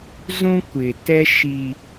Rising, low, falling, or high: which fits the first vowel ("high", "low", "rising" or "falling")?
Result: high